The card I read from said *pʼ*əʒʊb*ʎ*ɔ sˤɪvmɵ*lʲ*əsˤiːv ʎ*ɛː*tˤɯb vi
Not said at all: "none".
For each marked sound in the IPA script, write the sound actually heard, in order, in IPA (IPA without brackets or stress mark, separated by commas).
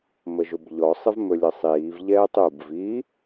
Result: m, ʎ, lʲ, ɛː